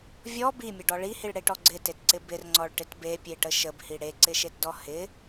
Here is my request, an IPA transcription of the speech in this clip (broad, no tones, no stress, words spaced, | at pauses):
vʲɔ bimʲəɖɔ ɭihiɭɽeʈɔ ɡ͡ǀɪtetǀɪ bɪrŋ͡ǀɔɭʈɪt bepʲeʈə ʃəbhi ɽeǀɪʃetdɔ hɪ